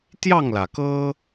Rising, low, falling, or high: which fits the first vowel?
falling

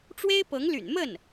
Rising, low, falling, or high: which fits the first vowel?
high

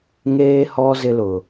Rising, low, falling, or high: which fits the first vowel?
high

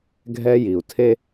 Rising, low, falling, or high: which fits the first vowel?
high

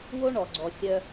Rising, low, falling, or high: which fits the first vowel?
high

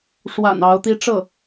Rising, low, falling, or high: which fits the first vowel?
low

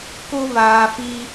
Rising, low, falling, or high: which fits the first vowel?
high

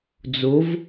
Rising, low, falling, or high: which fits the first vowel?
rising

